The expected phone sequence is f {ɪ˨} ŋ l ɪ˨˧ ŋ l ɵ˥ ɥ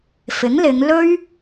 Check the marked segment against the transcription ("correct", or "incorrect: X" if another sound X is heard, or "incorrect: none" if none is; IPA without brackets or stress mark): incorrect: ɪ˨˥